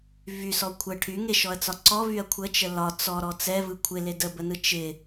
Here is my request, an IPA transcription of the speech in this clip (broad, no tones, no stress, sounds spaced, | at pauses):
v y s ɔ kʷʰ ə ʈʰ y ŋ e ʃ ɔ ɐ̯ t͡s ɒ ǀ ɔ v y ɐ̯ kʷʰ ə t͡ʃ ə l ɒ t͡s ɔ ɾ ɔ t͡s ɛ v ɯ kʷʰ ɪ l e d ə b ə n ɯ t͡ʃ ɪ